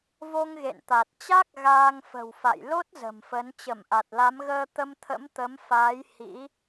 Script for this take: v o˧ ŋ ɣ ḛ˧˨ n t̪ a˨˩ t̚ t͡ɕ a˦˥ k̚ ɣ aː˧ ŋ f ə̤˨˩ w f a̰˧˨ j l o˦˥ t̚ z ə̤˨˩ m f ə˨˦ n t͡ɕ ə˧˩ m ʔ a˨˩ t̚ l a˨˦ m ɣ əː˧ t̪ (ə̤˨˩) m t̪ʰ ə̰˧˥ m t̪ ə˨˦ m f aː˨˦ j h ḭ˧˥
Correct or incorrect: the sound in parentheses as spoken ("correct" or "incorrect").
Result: incorrect